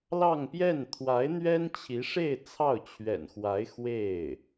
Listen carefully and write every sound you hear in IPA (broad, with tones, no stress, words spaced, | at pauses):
lɑ˥˧ŋpjɛ˥˩n t̪ʰwa˧˥ɪ̯n̪ɥɛ˥nt͡ɕʰi˧˥ʂe˥˧ɪ̯ t͡sʰɑ˥˩ʊ̯ t͡ɕʰɥɛ̰˨˩nxwa˧˥ɪ̯ xwe˥˩ɪ̯